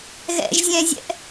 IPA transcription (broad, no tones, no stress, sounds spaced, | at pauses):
ɣ ɛ̰ ʒ zʲ ɛ̃ zʲ ɛ̰ ʔ